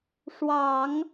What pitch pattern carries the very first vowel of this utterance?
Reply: low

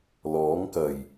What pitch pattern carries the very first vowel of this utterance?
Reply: rising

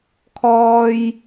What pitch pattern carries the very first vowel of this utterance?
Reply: high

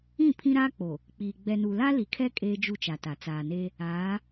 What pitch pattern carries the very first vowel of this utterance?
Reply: falling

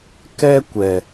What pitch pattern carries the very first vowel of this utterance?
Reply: high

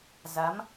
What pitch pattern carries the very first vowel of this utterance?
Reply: rising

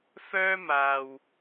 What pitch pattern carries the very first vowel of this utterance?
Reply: high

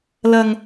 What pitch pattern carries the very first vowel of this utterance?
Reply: low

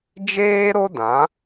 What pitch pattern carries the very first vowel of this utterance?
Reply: high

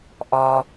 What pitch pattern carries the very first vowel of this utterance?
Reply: low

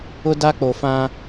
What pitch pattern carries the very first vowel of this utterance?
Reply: high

